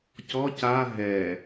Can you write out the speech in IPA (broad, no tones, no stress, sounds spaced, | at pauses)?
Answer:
c ɔ c a ɦ ɛ